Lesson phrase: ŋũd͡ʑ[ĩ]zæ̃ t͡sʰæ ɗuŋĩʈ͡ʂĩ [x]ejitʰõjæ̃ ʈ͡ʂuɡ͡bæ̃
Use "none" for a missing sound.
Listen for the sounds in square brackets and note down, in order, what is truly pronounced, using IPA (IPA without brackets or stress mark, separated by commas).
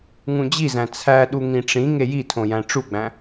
i, ŋ